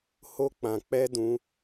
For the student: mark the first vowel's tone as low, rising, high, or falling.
high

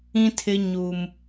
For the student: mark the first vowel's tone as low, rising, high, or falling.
high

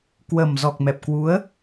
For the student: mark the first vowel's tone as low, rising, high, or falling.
low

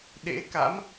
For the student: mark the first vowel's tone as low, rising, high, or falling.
rising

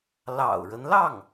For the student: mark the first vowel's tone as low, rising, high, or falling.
low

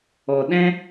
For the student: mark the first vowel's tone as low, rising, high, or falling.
low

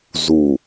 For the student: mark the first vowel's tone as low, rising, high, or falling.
low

